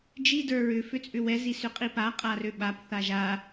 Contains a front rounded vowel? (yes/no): yes